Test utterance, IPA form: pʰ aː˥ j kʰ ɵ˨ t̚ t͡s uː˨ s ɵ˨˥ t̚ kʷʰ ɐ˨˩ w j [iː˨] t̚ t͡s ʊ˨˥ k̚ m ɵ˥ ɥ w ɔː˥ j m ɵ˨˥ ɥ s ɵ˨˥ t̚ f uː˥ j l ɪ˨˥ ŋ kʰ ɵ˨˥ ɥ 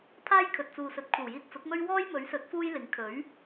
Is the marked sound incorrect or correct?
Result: incorrect